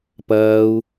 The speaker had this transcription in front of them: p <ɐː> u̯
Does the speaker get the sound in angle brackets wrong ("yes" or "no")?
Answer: no